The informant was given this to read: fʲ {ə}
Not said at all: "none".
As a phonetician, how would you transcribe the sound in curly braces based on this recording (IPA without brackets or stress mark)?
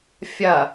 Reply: ɐ